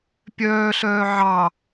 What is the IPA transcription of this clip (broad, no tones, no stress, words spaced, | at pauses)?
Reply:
pʲœːɬœː ʕɑ